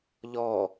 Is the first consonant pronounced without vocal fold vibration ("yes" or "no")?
no